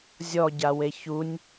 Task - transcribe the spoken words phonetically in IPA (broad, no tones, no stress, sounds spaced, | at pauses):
zʲ ɔ ɟ a w e ç u nʲ